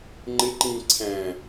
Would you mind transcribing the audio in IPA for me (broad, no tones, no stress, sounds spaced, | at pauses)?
ŋ͡ǃ ɪ ǃ ĩ ǀʰ æ̃